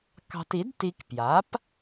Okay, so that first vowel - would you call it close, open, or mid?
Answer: open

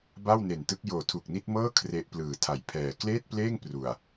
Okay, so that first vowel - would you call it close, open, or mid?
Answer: open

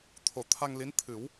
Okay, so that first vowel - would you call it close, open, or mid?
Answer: mid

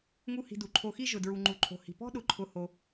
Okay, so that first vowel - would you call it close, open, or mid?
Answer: close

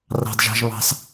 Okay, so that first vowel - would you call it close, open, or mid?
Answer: open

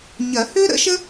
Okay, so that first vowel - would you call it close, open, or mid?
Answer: open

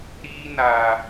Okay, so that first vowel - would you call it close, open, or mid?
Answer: close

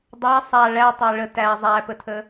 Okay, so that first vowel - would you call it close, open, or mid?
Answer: open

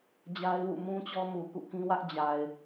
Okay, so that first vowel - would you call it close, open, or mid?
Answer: open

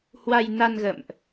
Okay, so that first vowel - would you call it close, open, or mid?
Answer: open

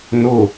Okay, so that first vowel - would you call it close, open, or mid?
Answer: close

